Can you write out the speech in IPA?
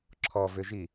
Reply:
ǁʰ ɔ v ʏ ʒ i

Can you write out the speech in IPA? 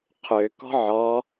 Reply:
qʰ ø k ɔ̤ ʕ ɔ

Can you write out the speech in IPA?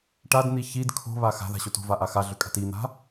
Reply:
ʈ a d n̪ i ç i d kʰ o̤ β a x a̤ ð a̤ ɕ o t o̤ v a ʔ a x a ɮ ʏ kʼ a̤ t i n̪ a̤

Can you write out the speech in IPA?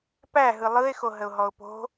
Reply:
p æ ɦ ɯ lˠ ɯ ɪ̯ x o ɦ ə ʊ̯ ɦ ɔ ʊ̯ p o̤

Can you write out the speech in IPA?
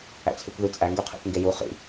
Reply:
æ̰ t͡sʰ y kʷ ð ʉ t͡sʼ æ ŋ ɡ y qʰ ḭ θ ŋ ɡ e j u χ ḭ

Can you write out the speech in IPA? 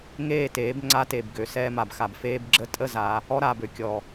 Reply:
ŋ eː˦˨ t eː˨˦ b ŋ͡ǀ a˦ t e˨ b ɡ ø˨ s ɛː˦ m a˨ b x a˨ b f eː˦ b ɡ͡ǁ ə˦ tʼ ə˦ z a˨˦ | ɔ˦ ɾ aː˨ b ø˨ kʲ ɔ˨

